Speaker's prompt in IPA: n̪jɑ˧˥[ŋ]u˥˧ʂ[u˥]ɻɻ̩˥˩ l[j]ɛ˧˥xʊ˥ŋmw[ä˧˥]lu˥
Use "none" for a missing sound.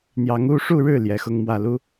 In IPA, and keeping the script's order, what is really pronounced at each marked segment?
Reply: ŋ, u˥˧, j, ä˥˩

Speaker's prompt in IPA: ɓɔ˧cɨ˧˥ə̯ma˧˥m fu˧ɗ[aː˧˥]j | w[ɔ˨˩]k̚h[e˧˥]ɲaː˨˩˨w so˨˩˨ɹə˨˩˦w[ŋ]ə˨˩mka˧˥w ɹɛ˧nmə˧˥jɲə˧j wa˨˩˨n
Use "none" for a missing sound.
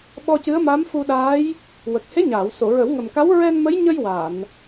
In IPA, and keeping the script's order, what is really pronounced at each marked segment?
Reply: aː˧˥, ə˨˩, e˧˥, ŋ

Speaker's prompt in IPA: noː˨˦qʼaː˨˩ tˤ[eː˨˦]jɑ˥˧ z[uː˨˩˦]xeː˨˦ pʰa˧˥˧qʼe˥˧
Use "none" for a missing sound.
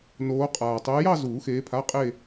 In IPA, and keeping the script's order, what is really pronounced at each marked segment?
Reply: eː˨˦, uː˨˩˦

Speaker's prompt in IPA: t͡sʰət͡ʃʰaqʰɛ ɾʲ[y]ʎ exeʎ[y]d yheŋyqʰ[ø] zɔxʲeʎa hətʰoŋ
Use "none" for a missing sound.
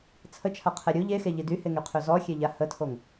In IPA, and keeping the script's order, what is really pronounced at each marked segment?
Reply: u, i, ø

